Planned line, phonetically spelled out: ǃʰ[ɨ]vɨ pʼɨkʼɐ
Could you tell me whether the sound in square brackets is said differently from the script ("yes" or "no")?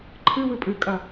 no